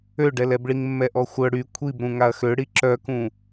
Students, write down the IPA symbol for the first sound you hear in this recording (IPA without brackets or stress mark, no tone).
ø